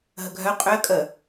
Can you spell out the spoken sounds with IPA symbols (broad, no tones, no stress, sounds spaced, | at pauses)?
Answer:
ɦ ə ɡʱ œ qʼ ø ə̯ kʼ ə